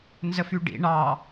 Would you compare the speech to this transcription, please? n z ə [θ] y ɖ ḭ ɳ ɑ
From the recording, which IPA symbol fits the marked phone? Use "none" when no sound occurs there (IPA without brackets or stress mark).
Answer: f